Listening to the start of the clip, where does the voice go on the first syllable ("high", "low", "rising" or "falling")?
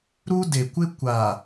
high